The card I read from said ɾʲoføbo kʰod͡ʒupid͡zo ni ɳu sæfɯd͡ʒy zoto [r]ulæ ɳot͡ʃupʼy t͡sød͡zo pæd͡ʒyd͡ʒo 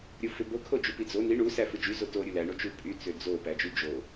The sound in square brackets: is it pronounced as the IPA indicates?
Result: no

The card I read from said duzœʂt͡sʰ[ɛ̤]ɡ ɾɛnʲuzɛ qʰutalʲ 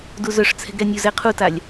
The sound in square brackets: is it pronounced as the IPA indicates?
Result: yes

